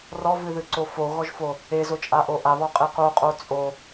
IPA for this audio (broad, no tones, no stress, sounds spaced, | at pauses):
r ɔ v ɨ ð ɨ ǀ o f o ɣ ɔ ʒ f o | e z o t͡ʃʼ a ʔ o ʔ a β ɔ qʼ e q o qʼ o t͡sʼ o